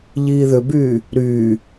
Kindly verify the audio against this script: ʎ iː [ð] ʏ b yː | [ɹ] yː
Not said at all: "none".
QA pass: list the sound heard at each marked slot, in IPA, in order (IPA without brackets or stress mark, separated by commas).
ð, ɾ